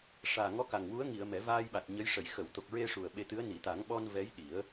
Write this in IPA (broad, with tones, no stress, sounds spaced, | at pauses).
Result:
ʂ aː˨˩ ŋ ɔ˧˥ k a˨˩ ŋ w u˧˥ ə̯ ŋ i˨˩˨ ə̯ m ɛ˨˩˦ v aː˧ j ɓ a˨˩ t̚ ɲ ə˧˥ j ʂ ə˨˩˨ j x ə˨˩˨ w t̪ o˨˩ k̚ ɹ e˧ ʂ u˨˩ ə̯ ɓ e˧ t̪ ɨ˧˥ ə̯ n i˨˩˨ t̪ a˨˩˦ ŋ ɓ ɔ˧ n v ɛ˧˥ j ɗ i˨˩˦ ə̯